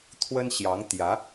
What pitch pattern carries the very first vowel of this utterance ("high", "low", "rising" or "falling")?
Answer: high